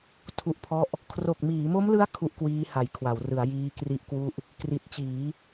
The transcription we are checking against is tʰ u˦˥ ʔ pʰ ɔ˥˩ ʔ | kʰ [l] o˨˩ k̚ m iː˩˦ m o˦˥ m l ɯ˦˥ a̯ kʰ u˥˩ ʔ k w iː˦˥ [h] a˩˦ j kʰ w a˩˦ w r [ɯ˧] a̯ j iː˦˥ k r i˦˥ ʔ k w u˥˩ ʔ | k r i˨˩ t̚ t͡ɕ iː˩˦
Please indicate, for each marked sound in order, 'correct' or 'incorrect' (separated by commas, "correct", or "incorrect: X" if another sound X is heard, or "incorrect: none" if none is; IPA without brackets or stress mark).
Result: incorrect: r, correct, incorrect: ɯ˩˦